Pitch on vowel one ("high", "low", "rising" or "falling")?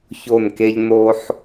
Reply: falling